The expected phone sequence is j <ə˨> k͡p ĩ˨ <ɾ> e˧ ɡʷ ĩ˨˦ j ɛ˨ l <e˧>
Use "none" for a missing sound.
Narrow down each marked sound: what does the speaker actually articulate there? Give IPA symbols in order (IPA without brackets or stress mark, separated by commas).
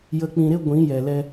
ə˨, ɾ, ɛ˧